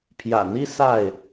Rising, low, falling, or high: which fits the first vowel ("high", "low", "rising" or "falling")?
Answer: low